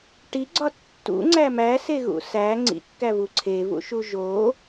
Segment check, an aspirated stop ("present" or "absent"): present